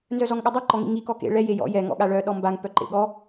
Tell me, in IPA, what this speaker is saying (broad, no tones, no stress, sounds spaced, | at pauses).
n z œ z ɔ ŋ ɠ œ dˤ ɛ ǃ ɔ ŋ ḭ ŋ i k ɔ k ḛ ɭ ɛ j e j ɔ̰ j ɛ ŋ ɔ̰ ɠ a ɭ œ ɗ ɔ m b a ŋ p œ ǃ ḛ ɠ ɔ